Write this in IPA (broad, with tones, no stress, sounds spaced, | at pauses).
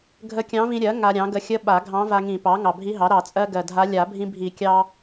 ɡʱ ə˧˥ kʲ ɑ̃˧˥ v ĩ˧ ɾʲ ɜ˩˥ ŋ a˧ ɾʲ ɑ̃˩˥ ɡ ə˧˥ xʲ ə˧˥ ɓ a˨˩˦ ɡʱ ɑ̃˧˥ v a˧ ŋ ĩ˨˩˦ p ɑ˩˥ ŋ ɑ˨˩ bʱ i˧˥ ɦ ɑ˩˥ ɾ ɑ˨˩˦ t͡sʼ ɜ˧ ɡ ɜ˨˩ dʱ a˧˥ lʲ a˨˩˦ bʱ ĩ˧ bʱ i˨˩˦ kʲ ɑ˧